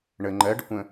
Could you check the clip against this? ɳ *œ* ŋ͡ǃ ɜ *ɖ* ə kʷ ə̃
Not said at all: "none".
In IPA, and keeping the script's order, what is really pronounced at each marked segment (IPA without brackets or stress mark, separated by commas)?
ə, ɖ